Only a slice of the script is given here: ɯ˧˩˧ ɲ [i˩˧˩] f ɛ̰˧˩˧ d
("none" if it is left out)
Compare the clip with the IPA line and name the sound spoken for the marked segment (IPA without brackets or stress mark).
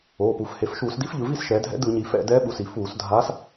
i˩˧